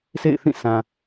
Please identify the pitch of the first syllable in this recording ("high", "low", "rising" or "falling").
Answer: falling